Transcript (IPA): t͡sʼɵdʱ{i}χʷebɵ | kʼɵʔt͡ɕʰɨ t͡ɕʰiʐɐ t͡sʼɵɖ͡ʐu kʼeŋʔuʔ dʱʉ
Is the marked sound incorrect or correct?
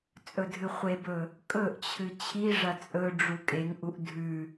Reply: incorrect